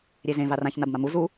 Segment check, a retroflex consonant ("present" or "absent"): absent